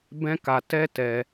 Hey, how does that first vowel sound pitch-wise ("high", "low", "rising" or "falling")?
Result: high